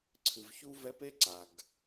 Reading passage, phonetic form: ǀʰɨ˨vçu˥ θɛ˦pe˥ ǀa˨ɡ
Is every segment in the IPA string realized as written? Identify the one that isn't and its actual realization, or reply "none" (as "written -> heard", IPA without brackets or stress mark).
θ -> v